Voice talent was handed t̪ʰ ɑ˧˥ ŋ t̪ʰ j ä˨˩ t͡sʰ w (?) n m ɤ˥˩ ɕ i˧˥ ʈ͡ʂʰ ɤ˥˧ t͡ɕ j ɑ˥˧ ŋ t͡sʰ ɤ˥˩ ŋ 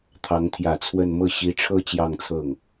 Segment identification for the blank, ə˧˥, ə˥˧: ə˥˧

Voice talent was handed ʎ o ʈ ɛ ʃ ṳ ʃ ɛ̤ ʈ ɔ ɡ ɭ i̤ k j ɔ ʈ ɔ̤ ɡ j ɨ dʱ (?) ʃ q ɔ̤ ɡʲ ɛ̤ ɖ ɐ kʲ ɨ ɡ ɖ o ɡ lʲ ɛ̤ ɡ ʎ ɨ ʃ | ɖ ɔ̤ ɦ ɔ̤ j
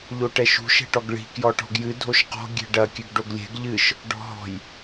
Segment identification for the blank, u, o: o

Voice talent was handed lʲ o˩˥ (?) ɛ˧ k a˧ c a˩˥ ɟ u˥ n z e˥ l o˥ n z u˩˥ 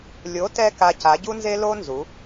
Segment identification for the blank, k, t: t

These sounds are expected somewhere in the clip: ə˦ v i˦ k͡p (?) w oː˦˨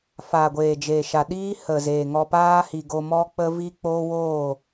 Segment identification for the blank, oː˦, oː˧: oː˦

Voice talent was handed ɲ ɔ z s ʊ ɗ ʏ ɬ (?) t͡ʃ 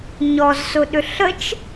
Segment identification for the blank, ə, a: ə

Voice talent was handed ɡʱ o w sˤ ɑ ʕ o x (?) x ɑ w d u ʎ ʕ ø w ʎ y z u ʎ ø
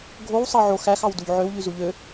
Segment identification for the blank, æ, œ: æ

